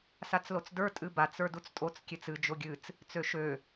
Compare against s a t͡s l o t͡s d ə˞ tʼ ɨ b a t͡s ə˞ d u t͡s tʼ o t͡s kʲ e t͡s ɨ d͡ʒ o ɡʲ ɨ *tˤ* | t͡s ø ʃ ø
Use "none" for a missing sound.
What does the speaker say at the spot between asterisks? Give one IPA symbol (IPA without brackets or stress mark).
t͡s